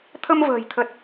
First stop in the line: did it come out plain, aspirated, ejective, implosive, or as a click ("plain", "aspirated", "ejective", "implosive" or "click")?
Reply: aspirated